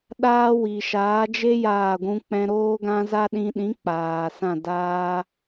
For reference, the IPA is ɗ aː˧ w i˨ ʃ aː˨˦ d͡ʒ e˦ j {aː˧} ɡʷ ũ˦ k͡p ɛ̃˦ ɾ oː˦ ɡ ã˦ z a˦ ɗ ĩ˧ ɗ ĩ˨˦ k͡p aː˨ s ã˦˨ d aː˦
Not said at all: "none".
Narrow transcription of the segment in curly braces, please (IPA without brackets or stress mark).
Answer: aː˦˨